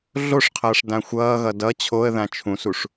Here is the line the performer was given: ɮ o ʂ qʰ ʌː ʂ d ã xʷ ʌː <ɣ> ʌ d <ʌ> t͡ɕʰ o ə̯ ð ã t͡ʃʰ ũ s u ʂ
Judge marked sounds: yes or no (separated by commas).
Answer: yes, yes